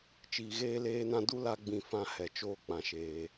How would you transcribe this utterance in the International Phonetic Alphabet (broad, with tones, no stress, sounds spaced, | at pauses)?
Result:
t͡ʃ iː˨ ɣ eː˧ l eː˧ n ã˧ d u˦ l a˧ ɡ͡b ĩ˨ f ã˧ h ɛ˨ t͡ʃ oː˧ k͡p ã˨ ʃ eː˨